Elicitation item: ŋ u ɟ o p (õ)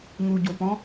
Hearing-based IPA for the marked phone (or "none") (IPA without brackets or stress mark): ɔ̃